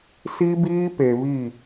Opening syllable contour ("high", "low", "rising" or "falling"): high